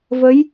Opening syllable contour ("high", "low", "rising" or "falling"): rising